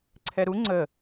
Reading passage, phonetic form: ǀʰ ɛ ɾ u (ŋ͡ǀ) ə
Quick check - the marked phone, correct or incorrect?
correct